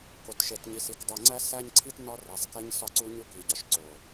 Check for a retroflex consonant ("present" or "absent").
absent